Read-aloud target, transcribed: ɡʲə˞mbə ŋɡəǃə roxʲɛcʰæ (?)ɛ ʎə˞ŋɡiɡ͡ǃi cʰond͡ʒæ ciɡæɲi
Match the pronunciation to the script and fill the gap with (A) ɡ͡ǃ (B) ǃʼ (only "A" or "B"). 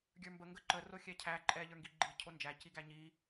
B